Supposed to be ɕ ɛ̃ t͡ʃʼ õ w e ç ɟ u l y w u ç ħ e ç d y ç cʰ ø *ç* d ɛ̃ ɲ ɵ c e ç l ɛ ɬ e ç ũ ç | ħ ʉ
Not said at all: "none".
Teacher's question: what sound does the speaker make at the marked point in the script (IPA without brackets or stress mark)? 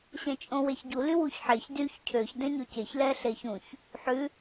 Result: ç